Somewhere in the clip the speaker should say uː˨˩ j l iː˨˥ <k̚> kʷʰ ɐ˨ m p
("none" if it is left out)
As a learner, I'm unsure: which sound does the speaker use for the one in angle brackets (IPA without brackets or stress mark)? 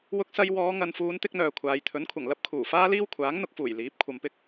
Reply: p̚